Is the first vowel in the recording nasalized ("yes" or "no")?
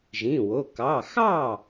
yes